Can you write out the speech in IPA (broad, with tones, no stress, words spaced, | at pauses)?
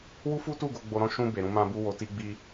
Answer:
wu˦fu˦tu˦˨ɡo˧ ɡ͡bo˨ɾɔ̃˨˦ ʃũ˧ be˨ɾũ˧mã˧bu˧ wo˨ti˧ɡ͡bi˧